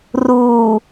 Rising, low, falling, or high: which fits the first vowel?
low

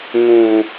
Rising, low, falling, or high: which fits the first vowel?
low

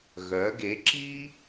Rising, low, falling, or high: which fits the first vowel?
rising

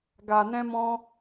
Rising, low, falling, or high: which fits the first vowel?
low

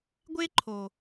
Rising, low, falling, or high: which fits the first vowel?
high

